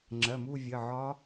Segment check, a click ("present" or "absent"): present